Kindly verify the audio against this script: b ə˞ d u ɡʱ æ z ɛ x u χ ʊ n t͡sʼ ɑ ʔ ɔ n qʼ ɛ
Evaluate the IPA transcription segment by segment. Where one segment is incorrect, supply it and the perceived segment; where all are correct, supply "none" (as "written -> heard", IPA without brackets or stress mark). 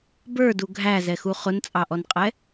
none